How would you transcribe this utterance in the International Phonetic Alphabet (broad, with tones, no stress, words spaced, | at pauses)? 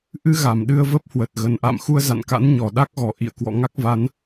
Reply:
ʔɨ˧ɣa˧˩m ɗɨ˧ə̯və˦˥p̚ hwə˨˩t̚ɣə˨˩n ʔa̰˧˨mxu˧ə̯za̰˧˨nka̰˧˥n ɲɔ˨˩ɗa˦˥k̚ɣɔ˨˩ ʔḭ˧˨ə̯ kwɔ̰˧˨ŋa˦˥k̚ va˨˦n